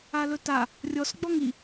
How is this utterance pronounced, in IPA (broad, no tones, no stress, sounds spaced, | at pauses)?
a l ɵ t a | rʲ ɔ s ɡ͡b ɔ ŋ i